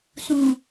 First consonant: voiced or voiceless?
voiceless